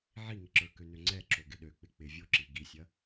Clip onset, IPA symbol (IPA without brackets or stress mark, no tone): ʕ